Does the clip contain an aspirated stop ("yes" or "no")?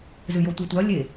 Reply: no